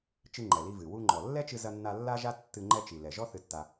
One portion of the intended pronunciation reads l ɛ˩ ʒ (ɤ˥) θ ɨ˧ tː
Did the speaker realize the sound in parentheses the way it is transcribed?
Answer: no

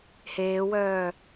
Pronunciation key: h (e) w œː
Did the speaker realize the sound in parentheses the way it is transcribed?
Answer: no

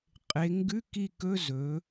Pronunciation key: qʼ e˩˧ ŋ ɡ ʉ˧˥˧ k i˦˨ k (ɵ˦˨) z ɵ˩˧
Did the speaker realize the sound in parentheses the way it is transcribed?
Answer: no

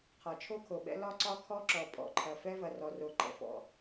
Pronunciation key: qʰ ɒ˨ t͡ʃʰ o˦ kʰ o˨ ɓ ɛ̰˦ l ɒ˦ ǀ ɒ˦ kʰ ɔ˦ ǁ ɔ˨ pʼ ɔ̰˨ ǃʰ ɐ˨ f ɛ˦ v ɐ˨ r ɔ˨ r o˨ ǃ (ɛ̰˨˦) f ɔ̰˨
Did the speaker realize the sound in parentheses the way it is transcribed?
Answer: no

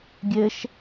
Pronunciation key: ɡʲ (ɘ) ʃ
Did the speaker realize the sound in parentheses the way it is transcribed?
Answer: yes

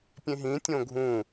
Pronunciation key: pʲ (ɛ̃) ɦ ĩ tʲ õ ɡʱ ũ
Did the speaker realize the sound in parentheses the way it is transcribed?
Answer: no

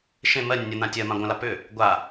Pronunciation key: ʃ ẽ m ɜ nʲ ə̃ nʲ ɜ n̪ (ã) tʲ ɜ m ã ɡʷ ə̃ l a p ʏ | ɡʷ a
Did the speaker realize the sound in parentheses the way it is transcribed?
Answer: yes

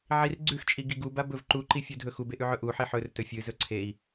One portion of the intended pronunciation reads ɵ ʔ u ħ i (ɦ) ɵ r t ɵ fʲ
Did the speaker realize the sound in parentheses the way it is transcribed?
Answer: no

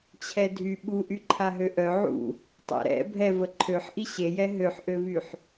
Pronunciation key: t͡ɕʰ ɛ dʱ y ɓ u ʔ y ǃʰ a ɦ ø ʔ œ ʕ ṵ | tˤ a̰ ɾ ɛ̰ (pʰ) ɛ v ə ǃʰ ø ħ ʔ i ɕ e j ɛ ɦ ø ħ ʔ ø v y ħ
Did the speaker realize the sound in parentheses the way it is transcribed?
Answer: no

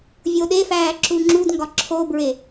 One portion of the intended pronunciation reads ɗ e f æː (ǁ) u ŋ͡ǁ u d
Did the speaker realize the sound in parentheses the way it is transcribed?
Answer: yes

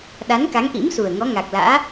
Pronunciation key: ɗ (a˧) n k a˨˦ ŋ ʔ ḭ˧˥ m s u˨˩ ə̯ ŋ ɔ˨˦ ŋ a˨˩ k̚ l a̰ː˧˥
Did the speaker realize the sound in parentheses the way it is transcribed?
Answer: no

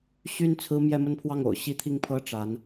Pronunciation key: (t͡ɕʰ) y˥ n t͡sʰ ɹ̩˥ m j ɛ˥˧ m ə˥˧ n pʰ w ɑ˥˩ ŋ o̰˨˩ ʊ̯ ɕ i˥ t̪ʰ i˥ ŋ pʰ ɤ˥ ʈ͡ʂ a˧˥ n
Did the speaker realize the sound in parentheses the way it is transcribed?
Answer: no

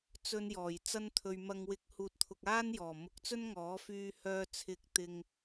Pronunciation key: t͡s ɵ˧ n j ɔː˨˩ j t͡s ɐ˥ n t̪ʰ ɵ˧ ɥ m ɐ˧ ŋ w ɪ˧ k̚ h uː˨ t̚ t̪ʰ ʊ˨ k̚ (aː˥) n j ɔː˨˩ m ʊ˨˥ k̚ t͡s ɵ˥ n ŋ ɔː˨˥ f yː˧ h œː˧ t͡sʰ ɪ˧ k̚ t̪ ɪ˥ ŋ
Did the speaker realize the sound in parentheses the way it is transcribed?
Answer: yes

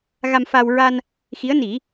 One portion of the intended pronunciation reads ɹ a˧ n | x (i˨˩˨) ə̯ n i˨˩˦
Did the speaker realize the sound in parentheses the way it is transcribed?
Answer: no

